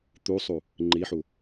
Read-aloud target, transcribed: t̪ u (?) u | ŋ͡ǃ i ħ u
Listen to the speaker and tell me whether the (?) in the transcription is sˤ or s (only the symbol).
sˤ